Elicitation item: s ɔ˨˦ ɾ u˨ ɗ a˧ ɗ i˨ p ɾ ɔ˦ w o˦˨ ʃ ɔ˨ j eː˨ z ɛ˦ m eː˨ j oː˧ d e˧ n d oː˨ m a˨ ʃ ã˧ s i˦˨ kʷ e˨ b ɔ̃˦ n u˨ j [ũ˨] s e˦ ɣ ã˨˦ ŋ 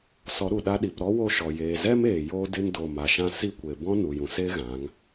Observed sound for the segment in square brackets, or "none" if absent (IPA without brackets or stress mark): ũ˨